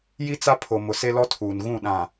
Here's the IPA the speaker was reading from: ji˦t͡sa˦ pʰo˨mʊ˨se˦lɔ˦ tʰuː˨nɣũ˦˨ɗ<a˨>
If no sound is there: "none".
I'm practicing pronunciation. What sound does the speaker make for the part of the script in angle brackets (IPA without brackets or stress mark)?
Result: ã˨